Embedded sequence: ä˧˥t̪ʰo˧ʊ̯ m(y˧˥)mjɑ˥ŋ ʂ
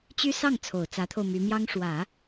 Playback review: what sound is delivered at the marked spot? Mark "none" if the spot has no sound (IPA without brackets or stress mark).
y˧˥